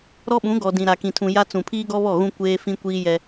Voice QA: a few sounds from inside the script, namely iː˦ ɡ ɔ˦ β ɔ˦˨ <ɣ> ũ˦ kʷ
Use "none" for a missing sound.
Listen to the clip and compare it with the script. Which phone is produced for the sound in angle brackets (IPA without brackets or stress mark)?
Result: ɣ